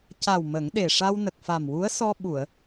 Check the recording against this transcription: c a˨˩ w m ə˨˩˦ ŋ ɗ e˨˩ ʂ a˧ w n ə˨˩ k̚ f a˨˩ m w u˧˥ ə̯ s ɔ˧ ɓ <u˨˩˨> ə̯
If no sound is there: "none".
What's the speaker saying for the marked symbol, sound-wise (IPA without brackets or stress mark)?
u˨˩˨